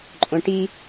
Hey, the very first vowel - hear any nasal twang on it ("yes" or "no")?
yes